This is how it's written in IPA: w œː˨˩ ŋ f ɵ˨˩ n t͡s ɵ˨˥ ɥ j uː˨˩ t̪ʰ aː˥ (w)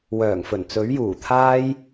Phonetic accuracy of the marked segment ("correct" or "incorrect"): incorrect